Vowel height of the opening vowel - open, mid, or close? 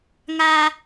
open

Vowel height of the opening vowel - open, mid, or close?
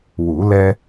close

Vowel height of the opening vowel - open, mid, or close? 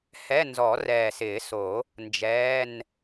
mid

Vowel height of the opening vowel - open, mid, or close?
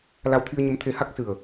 open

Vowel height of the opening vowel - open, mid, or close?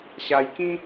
open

